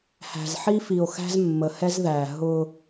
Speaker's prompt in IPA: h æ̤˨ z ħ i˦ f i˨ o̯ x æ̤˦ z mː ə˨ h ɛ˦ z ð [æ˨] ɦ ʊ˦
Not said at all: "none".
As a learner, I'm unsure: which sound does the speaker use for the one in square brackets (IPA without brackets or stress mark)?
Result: æ˨